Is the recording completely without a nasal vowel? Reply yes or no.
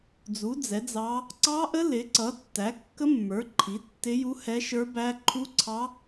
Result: yes